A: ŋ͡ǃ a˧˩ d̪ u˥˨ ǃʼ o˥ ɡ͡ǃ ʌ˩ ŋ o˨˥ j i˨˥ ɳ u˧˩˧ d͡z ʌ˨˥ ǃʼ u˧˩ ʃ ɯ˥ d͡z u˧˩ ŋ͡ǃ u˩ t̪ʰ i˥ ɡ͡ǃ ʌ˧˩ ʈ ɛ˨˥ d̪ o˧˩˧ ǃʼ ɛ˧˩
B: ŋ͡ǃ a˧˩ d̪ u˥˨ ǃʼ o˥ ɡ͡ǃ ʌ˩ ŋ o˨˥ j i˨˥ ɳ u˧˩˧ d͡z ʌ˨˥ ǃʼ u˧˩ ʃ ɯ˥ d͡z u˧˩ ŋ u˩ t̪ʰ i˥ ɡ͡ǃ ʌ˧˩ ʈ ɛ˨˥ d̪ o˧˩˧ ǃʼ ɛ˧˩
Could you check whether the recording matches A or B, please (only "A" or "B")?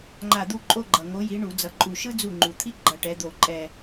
A